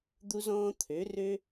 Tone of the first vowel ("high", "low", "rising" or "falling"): high